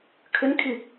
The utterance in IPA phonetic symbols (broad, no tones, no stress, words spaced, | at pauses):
kʰʏnkʰi